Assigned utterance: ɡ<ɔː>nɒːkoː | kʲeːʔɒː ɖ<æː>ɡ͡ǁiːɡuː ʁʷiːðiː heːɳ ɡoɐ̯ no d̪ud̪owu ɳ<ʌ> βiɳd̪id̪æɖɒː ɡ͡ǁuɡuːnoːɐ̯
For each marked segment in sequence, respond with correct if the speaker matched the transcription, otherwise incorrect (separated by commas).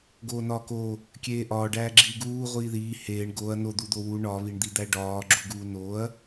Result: incorrect, correct, incorrect